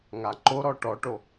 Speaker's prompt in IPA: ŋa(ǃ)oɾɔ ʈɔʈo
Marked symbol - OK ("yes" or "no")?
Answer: yes